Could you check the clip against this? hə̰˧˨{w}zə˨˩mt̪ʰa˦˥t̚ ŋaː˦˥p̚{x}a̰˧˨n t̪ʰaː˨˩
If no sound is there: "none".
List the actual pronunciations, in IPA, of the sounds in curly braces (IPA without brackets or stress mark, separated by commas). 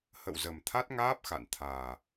w, x